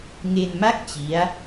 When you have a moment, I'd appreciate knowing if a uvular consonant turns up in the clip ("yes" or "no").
no